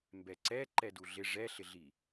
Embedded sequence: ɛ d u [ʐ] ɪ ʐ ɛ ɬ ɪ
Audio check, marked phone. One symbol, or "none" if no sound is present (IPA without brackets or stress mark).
ɮ